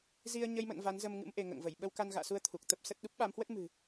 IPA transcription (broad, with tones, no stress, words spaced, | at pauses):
zi˧ə̯ɲə˧jmə̰˧˨n va˨˦nzə˧mŋɨ̰˧˥m ʔe˧ŋə̰ː˧˨ŋvə˧˩j ɓə˧wka˧nɣa̰ː˧˨su˧ə̯ t̪ʰu˨˩k̚t̪ə˦˥p̚sə˦˥t̚ ɗu˦˥p̚ɓa˨˦mhwə˦˥t̚ mɨ̤˨˩